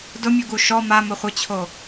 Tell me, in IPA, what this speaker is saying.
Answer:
d ʊ mʲ u ɡ u ʃ ɔ m a m ʊ χʷ ɪ t͡ɕʰ o

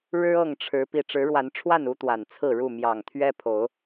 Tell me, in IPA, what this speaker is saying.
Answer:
ɻ ɻ̩˦ ɤ˥˨ ŋ ʈ͡ʂʰ ɻ̩˨˦ p i˨˩ ʈ͡ʂ ɻ̩˨˦ ɻ w a˨˦ n ʈ͡ʂʰ w a˥˨ n u˦ t̪ w a˨˩ n t͡sʰ ɹ̩˥˨ ɻ u˥˨ m j ɑ˨˩ ŋ t̪ʰ ɥ ɛ˦ pʰ o˨˦ ʊ̯

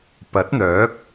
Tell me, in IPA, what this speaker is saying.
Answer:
p ɐ˨˥ t̚ n̪ œː˨˥ k̚

